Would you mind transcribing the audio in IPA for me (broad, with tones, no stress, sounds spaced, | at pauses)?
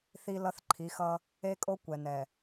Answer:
θ i˦ l ʌ˦ θ ǃʰ i˨˦ x ʌ˦ | e˦ kʼ o˦ kʷ ɛ˨ n ɛ˨